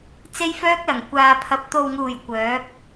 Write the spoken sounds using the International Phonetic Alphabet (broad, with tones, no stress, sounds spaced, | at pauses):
t͡s e˥ j f œː˥ k̚ l ɐ˨˩ ŋ kʷ aː˨ pʰ ɐ˨ p̚ t̪ o˨ w ŋ uː˨˩ j kʷ œː˨˥ p̚